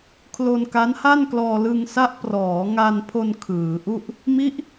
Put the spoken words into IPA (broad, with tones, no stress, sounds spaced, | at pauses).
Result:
kʰ l o˧ n k a˦˥ n h a˥˩ n k l ɔː˧ l ɯ˧ ŋ s a˦˥ ʔ p r ɔː˩˦ ŋ a˧ n pʰ o˧ n kʰ ɯː˩˦ ʔ u˥˩ ʔ | m i˦˥ ʔ